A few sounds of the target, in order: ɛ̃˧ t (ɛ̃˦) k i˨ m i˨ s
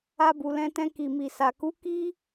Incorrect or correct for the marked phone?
incorrect: ɛ̃˧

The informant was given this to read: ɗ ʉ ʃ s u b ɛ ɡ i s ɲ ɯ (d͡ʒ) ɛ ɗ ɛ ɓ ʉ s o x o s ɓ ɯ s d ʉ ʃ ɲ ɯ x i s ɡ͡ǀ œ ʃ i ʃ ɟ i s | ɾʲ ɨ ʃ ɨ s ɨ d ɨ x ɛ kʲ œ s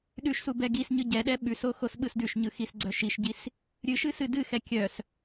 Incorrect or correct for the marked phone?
incorrect: ɟ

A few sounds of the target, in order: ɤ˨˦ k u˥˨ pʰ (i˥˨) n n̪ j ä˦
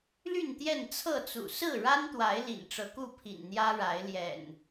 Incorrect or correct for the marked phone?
incorrect: ḭ˨˩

